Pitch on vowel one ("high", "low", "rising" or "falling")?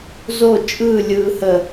falling